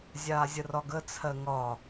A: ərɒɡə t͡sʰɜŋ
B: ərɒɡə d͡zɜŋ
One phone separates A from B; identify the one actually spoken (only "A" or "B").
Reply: A